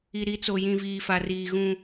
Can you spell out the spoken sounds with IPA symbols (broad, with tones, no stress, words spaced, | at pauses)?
i˨ɾi˨˦t͡so˨ jĩ˨viː˨fa˨riː˨ ɣũ˦